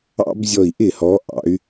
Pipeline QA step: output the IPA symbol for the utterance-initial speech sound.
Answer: ɑ̰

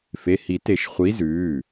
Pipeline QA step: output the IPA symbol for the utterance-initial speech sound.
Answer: f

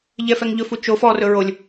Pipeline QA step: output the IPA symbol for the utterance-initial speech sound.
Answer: ʎ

